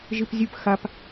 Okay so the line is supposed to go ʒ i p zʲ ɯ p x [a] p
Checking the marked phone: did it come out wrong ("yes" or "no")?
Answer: no